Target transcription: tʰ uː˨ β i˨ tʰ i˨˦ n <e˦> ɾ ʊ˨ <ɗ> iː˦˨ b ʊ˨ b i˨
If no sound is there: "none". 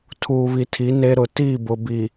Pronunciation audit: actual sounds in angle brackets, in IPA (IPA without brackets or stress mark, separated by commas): e˦, t